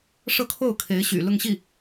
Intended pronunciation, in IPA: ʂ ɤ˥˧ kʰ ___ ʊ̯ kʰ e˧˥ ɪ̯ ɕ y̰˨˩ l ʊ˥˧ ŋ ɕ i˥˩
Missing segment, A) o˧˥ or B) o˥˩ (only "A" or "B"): B